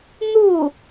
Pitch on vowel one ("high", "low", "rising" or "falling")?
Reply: falling